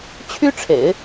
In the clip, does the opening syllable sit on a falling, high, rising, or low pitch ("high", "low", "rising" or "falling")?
high